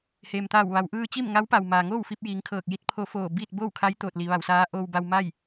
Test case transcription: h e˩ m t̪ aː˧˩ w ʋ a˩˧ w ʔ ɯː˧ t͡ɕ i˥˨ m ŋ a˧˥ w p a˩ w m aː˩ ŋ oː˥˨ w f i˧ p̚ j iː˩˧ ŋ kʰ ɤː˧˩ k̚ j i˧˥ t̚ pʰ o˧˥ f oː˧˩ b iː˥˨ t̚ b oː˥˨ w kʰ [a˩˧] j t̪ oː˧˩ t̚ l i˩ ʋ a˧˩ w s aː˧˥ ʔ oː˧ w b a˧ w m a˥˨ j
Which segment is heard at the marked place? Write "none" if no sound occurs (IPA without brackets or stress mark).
a˧˥